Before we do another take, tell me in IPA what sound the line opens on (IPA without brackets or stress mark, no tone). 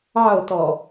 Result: ɑ